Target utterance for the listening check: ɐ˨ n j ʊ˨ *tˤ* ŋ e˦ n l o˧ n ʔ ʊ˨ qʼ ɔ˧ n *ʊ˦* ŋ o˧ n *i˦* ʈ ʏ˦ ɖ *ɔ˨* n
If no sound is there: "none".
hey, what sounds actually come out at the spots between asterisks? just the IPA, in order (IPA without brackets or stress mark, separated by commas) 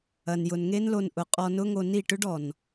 n, ʊ˦, i˦˨, ɔ˨